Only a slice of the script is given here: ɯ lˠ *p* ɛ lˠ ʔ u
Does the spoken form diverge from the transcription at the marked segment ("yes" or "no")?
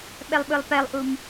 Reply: no